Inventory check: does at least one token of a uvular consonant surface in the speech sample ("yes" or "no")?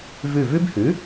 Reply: no